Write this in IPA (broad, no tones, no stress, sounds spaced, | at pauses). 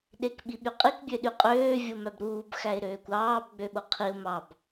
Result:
ɗ e k ɓ i ɓ y qʼ i k bʲ ø ɗ y qʼ øː vʲ o m æ b ɾ uː b x æ ɪ̯ ɾ øː kʷ ɑː b ɡ͡b ø ɓ o qʰ i ʊ̯ m ɑ b